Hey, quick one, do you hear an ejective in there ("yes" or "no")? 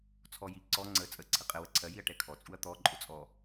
yes